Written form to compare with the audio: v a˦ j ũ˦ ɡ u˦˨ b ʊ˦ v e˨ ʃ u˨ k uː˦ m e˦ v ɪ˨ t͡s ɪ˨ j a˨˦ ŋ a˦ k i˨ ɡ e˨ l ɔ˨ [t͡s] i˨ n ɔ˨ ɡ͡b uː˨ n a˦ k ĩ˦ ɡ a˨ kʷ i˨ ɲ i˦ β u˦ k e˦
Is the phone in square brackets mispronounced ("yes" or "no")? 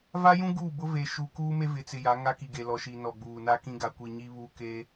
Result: yes